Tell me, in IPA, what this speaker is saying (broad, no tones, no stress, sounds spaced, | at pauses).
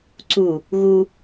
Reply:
ǀ u | ɣ u